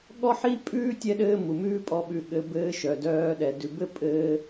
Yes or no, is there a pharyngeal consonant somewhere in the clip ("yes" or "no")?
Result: yes